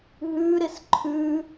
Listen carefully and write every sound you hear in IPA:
ɦʉɾɪs ǃʰʉ

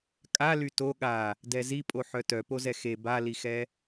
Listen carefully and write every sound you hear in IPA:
kʼa lyto ɠa | dɛzipʼo ħœtœpozɛ xe balixɛ

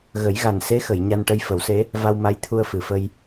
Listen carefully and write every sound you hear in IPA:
ɣə˨˩˦jɣa˨˩nse˧˥xə˨˩˨j ɲa˧nʈə˧jfə˨˩˦wse˧˥ | va˧wma˧˥j t̪ʰu˧ə̯fɨ˨˩˨fə˧j

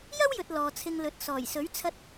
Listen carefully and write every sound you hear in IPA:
jɐ˥wjɵ˨t̚ lɔː˨t͡sʰɪ˧ŋlɵ˨˥t̚ sɔː˨˩jsɵ˨˥ɥ t͡sʰɐ˧t̚

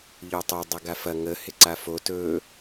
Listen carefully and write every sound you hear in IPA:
ʎotˤo dˤɐɡafɐ ŋə hɪǀafo tɵ

